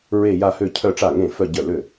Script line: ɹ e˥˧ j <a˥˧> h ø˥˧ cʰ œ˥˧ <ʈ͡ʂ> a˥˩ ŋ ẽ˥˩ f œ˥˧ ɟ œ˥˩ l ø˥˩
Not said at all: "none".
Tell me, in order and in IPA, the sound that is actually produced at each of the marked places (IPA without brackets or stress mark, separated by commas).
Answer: a˥˧, ʈ͡ʂ